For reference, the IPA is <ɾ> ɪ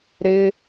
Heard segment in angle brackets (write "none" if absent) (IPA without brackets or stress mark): ɾ